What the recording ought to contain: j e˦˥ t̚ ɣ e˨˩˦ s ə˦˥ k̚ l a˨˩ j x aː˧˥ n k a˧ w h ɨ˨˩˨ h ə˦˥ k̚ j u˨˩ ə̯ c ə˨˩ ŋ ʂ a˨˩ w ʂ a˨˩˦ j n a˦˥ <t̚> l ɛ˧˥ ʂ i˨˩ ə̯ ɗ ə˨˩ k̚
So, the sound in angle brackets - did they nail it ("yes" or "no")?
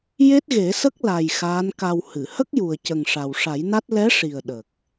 yes